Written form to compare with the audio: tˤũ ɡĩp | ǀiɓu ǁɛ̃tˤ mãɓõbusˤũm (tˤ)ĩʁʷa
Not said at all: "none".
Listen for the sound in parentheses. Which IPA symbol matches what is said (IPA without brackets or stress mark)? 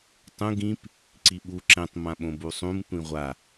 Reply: tʷ